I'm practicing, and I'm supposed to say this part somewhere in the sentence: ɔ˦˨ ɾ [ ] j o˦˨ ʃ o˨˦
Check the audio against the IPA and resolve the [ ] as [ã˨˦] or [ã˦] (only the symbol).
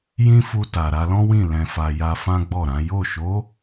ã˨˦